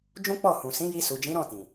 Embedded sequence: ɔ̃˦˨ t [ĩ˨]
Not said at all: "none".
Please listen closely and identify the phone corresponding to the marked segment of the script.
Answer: ĩ˨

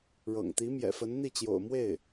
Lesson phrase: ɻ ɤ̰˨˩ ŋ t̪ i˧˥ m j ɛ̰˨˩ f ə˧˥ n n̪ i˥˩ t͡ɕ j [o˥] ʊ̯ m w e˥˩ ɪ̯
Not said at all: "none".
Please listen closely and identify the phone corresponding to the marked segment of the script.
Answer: o̰˨˩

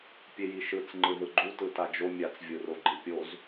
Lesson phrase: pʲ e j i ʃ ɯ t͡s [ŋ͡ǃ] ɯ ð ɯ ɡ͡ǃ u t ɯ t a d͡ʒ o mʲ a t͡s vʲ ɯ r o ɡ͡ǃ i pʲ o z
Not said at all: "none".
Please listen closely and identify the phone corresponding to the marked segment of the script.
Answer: ŋ͡ǃ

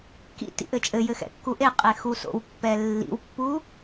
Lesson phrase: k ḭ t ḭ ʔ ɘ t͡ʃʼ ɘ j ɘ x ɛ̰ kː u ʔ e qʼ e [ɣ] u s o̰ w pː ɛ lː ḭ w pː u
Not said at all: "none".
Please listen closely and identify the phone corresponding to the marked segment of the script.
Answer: x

